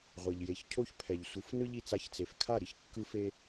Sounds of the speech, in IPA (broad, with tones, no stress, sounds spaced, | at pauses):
ʁʷ i˩ ʎ j e˩˥ ç cʰ o˥ ç pʰ ɛ˩ ʎ sʷ ɯ˩˥ f n ɯ˥ ʎ i˩ t͡s a˧ ç t͡s e˩ f kʰ a˥˩ ɾ i˥ ç kː ɯ˥ f e˥